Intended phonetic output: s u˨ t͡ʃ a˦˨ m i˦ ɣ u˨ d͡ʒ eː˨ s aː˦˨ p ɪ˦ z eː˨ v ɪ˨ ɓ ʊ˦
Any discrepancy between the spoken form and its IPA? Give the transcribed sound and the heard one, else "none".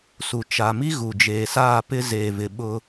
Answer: a˦˨ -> a˨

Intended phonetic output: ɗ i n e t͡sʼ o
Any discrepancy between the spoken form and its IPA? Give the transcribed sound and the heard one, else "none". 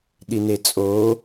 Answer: none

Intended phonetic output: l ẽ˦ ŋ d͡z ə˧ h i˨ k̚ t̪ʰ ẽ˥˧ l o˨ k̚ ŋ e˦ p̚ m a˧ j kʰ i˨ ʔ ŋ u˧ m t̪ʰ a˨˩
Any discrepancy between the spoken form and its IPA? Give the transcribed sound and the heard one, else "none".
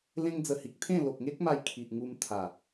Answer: p̚ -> k̚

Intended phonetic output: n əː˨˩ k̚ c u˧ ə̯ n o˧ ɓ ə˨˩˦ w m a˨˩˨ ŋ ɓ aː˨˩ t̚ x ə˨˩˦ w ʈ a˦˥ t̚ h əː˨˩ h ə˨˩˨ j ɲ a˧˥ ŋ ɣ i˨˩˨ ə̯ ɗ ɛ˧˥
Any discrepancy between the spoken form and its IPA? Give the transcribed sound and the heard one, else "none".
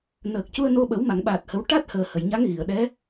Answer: x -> h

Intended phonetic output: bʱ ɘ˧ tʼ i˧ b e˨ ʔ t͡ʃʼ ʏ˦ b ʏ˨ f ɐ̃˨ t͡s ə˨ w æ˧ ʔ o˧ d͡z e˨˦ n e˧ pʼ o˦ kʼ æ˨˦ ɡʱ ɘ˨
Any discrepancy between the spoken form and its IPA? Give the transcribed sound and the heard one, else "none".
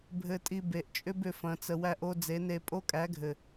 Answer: none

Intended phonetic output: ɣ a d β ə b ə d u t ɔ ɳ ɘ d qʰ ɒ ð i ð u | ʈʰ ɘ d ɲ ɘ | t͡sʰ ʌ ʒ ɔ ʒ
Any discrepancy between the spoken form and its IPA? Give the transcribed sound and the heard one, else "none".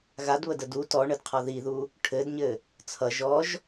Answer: b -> d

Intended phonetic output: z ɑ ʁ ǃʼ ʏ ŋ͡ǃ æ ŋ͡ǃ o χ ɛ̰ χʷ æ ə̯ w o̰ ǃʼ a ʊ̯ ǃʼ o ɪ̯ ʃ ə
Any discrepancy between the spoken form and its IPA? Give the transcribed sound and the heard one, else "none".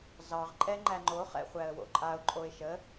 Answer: ʏ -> ɛ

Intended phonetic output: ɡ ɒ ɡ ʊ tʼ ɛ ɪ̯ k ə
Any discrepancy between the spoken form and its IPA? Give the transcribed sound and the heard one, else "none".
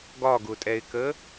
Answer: none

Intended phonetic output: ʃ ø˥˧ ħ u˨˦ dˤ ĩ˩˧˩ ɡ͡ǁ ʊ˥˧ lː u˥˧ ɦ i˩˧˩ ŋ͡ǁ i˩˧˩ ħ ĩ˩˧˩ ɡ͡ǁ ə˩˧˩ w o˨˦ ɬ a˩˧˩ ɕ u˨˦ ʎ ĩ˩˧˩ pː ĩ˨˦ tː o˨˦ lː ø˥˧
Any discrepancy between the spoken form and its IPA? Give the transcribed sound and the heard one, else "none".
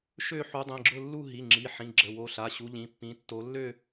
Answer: none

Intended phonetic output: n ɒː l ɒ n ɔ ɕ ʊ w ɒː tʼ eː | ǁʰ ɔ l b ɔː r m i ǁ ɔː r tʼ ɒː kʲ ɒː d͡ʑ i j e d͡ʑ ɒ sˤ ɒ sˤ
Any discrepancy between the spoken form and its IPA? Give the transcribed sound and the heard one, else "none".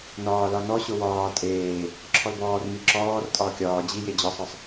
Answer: none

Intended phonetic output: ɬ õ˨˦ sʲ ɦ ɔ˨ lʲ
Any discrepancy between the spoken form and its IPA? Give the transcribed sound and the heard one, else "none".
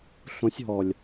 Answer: none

